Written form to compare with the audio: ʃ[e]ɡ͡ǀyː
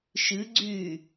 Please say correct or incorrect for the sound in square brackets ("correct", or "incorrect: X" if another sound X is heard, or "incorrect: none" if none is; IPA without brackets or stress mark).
incorrect: ɨ